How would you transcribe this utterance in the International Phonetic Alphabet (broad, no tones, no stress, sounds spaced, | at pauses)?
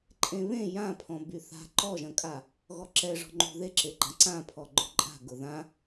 ǃʼ ẽ β ẽ j ã pʰ ɔ̃ b y θ a̤ ǃ ɔ ʒ ɐ̃ kʼ a | ɣ ɔ ǁ ɛ ʐ ɔ̤ ŋ͡ǃ ṳ ð e ǁ e ɡ͡ǃ ã ǀ ã pʰ ɔ ɡ͡ǃ ʊ ǃʼ a̤ ɡ ʊ ð ã